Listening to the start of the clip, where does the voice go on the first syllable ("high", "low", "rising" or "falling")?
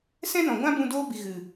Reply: high